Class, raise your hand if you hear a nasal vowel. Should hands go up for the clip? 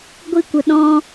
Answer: yes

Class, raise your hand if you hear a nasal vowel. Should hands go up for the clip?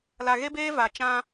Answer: yes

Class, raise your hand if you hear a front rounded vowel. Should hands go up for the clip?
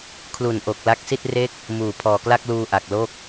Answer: no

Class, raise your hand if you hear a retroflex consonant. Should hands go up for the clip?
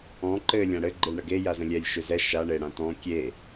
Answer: yes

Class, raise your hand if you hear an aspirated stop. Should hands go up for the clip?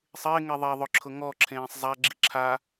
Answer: yes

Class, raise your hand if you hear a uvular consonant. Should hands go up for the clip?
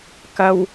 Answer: no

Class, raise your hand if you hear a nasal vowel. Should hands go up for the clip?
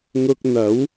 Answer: no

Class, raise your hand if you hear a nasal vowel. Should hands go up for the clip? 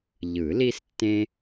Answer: yes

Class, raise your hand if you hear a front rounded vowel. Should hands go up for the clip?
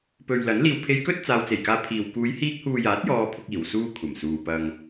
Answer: no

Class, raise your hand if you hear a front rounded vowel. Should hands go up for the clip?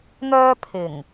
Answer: yes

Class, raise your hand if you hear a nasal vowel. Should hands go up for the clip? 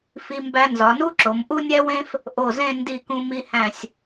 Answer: yes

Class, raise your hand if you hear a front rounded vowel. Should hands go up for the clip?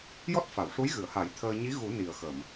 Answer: no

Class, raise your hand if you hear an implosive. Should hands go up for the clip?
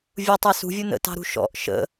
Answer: no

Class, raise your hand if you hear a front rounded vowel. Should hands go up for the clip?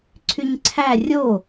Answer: yes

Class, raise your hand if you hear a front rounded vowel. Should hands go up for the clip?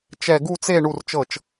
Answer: no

